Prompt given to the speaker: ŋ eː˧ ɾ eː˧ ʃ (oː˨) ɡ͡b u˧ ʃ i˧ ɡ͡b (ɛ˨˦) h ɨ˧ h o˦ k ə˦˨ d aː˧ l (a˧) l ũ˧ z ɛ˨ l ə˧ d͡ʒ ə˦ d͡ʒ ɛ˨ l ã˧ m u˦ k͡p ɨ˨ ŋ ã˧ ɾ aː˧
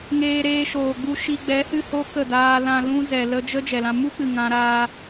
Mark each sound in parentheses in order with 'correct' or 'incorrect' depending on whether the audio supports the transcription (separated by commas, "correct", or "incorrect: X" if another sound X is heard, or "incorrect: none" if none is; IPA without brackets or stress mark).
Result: correct, correct, incorrect: ã˧